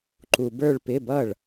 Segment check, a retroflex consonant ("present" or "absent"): present